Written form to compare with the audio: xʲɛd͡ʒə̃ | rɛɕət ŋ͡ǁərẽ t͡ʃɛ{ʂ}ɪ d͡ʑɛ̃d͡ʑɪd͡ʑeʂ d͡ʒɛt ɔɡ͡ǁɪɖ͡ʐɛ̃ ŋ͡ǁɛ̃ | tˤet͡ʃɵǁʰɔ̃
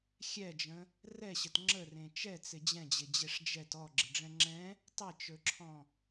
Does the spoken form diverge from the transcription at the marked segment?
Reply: yes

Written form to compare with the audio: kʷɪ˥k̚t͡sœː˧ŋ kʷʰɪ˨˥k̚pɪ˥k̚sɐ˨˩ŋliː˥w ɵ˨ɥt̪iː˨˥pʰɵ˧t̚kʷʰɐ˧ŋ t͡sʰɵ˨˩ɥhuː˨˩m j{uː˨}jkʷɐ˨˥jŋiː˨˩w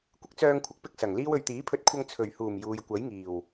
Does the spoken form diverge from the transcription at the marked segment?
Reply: no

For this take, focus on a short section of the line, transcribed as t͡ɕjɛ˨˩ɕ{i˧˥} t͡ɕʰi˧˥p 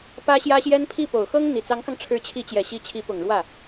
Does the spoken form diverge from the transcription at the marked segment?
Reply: no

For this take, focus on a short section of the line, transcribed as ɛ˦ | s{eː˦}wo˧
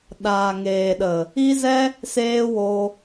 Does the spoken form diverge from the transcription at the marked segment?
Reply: no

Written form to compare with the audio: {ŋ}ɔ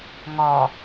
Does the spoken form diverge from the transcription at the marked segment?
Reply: no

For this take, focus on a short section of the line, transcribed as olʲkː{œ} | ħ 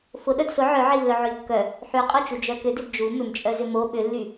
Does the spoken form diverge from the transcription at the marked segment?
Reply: no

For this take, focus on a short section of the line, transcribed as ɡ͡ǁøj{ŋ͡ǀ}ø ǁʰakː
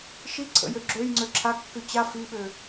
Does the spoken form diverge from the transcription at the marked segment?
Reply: no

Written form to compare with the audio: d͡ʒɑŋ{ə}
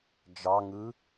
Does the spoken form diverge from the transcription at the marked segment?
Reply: yes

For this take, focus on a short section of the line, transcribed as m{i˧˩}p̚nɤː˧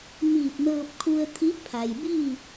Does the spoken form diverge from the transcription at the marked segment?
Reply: yes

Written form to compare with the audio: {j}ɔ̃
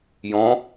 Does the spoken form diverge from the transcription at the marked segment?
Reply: no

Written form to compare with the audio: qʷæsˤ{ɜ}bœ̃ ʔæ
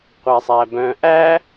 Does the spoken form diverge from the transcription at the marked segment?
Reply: yes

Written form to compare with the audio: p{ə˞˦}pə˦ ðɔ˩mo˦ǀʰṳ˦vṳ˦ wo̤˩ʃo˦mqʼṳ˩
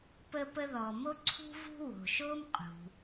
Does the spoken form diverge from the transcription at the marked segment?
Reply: yes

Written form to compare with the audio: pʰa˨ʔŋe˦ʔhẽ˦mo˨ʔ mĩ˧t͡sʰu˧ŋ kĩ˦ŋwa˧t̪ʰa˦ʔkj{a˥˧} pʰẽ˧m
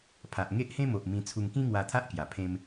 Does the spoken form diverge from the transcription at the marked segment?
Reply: yes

